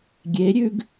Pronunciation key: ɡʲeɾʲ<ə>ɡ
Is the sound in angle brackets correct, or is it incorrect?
incorrect